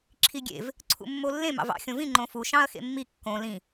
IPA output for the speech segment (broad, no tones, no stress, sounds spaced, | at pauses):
ǁʰ i ɡʲ ḛ v | ǀʰ ṵ mː o lː ẽ m ɑ̰ v ɑ̰ xʲ õ v ĩ ŋ͡ǃ õ f u ʃ ɑ̃ ɐ̯ x ḛ mː i kː õ l ĩ